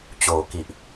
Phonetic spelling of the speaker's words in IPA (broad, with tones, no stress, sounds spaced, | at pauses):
t͡ɕ oː˨˩ k i˨˩ ʔ